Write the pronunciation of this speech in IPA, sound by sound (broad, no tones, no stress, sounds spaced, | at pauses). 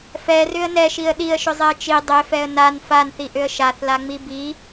f ɛ r ʏ ə̯ n ɛ ʃ i ə̯ ɗ i ə̯ ʃ ʏ zˤ e ə̯ t͡ʃ i dˤ e f ɛ ə̯ n a n f a n θ i ʔ ʏ ə̯ ʃ a θ l a ŋ͡m i b i